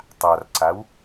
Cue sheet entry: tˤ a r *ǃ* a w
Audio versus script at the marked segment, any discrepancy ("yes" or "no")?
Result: yes